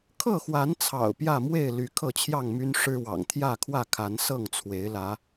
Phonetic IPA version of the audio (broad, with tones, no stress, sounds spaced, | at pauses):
kʰ ɤ˥˨ x w a˨˦ n t͡sʰ ɑ̰˨˩ ʊ̯ p j ä˥˨ m w e˥˨ ɪ̯ l y˨˦ kʰ ɤ˥˨ t͡ɕʰ j ɑ˥˨ ŋ m y˦ n ʂ ɻ̩˦ w ɑ̰˨˩ ŋ t̪ʰ j ä˥˨ kʰ w ä˥˨ kʰ a˨˦ n s ɤ˥˨ ŋ t͡sʰ w e˨˦ ɪ̯ l ä˨˦